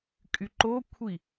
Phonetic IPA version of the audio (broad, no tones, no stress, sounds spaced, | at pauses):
kʼ y ǃ o kʷʰ i